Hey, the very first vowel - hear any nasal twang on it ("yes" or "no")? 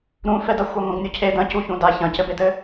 yes